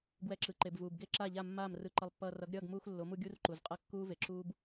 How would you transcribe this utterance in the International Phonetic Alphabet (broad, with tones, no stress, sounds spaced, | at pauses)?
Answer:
ɡ w ɛ˧ ǁ ɯ˨ ǃ e˨ b v uː˨ b ɡ e˦ ǁ a˦˨ ʎ a˦˨ mː aː˦˨ m r ɯ˧ ǃ ʌ˧ lˠ pː ʌː˧ r ʌ˨˦ ɡ ɾʲ ʌː˦˨ ɡ m uː˧ x lː o˨˦ m u˧ ɡʲ u˦ r ǃ u˨ z qʼ ʌ˦ kː uː˦ v e˨ ǁ uː˦ b